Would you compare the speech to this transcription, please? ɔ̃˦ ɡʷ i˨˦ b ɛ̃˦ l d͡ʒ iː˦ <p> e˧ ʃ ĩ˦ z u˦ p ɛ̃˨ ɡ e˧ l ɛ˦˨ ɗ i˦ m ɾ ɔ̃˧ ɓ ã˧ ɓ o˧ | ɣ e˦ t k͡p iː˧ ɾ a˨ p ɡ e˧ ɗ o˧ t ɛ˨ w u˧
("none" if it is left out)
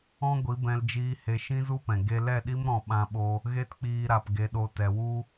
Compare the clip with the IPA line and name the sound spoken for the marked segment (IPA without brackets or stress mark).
h